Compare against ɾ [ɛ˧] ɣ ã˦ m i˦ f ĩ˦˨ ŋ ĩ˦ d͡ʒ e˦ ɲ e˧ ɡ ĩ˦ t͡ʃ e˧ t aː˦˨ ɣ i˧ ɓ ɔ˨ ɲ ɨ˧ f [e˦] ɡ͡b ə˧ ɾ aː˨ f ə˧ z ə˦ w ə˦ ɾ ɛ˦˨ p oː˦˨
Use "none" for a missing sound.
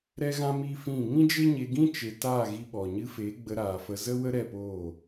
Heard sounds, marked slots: ɛ˦, e˨˦

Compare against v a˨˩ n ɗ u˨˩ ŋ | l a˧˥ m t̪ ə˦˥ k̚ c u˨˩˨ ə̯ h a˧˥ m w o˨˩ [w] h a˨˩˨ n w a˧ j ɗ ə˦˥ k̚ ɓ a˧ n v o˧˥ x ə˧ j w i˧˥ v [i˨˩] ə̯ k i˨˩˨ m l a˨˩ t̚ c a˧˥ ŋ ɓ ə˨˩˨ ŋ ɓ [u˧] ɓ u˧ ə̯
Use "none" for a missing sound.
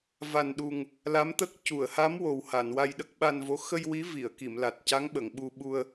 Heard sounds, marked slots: w, i˨˩˨, u˧

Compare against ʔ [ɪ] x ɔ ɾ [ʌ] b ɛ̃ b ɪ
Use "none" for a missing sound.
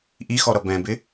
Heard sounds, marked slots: i, ʌ

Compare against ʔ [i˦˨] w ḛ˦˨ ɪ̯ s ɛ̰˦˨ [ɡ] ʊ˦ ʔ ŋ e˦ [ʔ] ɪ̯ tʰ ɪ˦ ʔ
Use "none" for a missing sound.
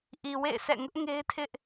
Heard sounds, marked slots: i˨, ŋ, none

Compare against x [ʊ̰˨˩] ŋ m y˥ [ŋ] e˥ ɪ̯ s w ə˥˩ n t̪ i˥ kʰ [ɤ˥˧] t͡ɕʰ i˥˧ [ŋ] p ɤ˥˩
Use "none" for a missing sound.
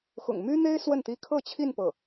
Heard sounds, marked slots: ʊ̰˨˩, n̪, ɤ˥˧, n

